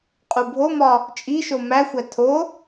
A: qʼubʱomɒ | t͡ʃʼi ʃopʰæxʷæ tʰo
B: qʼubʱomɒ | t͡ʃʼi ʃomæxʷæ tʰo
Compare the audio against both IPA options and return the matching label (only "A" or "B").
B